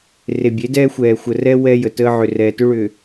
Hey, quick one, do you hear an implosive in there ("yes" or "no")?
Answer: no